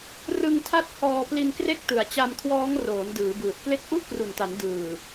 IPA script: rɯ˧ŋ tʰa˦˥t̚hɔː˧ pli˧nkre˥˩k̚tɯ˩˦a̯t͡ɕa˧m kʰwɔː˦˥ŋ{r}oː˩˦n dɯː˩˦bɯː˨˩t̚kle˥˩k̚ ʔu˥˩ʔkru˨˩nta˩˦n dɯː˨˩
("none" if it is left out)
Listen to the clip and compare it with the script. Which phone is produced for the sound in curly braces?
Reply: r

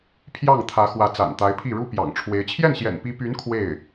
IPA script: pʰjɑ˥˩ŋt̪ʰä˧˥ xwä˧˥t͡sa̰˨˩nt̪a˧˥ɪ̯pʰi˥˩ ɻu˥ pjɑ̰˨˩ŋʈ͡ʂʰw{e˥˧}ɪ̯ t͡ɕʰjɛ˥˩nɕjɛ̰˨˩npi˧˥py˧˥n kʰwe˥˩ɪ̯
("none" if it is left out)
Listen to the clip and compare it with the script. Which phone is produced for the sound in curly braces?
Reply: e˧˥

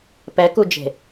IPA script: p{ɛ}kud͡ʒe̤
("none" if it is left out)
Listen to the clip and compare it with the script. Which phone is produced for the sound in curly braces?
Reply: ɛ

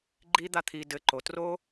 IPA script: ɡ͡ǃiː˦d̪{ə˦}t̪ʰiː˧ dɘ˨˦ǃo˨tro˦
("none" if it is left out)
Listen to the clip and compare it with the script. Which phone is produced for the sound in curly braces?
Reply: a˦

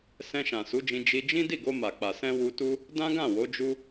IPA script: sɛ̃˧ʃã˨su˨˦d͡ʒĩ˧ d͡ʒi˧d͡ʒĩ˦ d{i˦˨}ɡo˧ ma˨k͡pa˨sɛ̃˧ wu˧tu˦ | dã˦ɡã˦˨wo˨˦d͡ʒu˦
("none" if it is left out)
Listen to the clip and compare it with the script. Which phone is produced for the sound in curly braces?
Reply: i˦˨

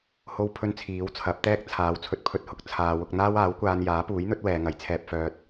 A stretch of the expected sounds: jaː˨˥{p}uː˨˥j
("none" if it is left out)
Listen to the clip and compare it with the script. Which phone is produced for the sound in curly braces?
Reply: p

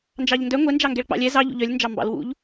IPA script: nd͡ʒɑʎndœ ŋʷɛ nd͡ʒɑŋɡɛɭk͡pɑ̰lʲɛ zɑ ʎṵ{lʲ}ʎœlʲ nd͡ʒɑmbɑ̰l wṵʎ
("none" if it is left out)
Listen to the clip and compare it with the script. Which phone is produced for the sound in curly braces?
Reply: none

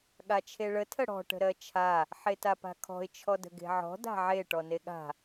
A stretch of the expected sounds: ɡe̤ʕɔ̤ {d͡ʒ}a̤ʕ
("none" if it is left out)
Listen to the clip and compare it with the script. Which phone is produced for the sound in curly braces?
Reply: d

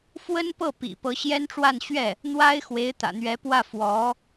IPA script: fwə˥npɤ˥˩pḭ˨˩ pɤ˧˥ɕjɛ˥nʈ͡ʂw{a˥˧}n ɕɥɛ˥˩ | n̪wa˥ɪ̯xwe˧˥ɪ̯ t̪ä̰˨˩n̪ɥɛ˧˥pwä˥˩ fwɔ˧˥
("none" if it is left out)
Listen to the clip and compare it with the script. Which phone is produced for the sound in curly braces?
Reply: a˥˧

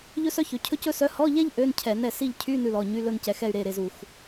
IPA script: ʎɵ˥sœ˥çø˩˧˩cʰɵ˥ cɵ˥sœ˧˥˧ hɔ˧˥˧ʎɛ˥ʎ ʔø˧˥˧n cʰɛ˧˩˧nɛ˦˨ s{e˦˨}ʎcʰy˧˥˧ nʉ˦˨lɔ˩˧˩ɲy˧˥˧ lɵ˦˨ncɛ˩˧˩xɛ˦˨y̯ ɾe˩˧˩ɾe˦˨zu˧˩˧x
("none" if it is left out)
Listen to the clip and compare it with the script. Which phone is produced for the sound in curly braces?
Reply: i˦˨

